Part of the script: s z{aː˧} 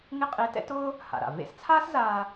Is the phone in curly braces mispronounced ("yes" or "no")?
no